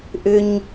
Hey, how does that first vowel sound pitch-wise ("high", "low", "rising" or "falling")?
high